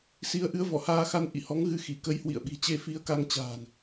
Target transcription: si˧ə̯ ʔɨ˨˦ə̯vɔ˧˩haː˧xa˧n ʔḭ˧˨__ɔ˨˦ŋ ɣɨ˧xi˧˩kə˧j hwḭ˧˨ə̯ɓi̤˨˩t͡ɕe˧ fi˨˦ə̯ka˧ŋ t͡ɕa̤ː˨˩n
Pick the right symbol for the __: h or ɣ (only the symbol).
h